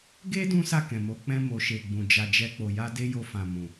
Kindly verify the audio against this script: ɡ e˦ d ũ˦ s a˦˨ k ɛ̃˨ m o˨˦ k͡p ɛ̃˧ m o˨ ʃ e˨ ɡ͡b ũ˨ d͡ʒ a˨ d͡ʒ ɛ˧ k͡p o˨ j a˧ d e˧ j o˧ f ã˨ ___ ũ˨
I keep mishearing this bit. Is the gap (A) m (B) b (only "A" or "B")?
A